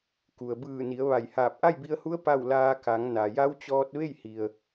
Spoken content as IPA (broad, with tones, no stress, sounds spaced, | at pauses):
k u˩ ə̯ b ɯː˧˩ n i˩˧ ə̯ ʋ a˧˩ j h aː˧˩ p̚ ʔ a˥˨ j b i˧ ə̯ h u˧˥ ə̯ p a˥˨ w l aː˧ k a˩˧ ŋ n a˩ j a˧˥ w t͡ɕ ɔː˧ t̚ ʋ e˥˨ j h i˩ ə̯